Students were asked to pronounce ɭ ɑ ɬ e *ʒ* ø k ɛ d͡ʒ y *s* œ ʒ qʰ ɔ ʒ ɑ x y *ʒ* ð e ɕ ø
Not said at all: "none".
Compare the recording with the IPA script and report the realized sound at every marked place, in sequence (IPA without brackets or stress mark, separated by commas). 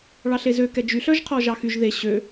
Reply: z, ɬ, ʒ